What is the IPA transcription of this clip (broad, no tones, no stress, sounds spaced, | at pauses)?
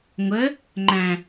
ŋʷ ə | ŋ͡ǃ æ̃